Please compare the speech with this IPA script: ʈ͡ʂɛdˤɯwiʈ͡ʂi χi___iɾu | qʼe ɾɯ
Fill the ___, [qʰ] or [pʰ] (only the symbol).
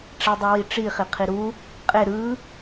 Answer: qʰ